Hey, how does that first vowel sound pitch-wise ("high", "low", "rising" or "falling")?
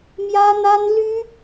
high